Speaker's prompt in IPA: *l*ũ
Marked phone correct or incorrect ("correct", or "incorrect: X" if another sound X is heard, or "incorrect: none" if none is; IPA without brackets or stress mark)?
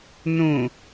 incorrect: n